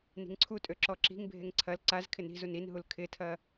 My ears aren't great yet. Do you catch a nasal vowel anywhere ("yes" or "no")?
no